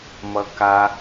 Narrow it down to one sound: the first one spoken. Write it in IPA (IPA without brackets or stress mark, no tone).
m